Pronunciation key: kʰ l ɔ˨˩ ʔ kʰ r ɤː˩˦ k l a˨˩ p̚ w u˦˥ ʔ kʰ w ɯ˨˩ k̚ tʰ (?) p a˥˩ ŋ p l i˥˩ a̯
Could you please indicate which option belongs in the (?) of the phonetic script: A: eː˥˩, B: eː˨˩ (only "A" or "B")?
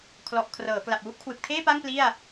A